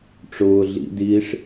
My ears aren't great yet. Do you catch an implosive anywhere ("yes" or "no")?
no